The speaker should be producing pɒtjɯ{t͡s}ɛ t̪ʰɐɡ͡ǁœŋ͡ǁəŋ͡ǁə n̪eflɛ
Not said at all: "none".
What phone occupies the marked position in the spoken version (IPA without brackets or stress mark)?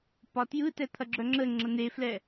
t